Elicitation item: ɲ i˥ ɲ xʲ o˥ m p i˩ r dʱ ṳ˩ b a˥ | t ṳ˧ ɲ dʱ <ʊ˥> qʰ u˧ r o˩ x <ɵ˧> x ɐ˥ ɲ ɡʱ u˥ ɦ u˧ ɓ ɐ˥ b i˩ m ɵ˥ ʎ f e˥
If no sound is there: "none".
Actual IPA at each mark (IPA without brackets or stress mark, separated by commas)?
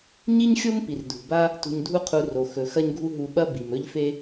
u˥, ɵ˩